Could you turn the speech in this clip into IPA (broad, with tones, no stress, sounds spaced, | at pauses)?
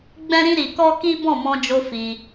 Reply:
ɡ͡b ɛ̃˦ ɾ ĩ˦ ɾ i˧ k ɔ˦ k i˦ b ɔ̃˦˨ m ɔ̃˧ d͡ʒ o˧ f i˧